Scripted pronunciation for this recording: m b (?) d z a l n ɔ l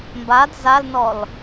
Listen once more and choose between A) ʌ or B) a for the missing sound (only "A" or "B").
B